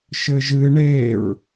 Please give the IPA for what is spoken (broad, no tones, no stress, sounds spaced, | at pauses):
ʃ ɘ ʒ ɨ ɳ e ɹ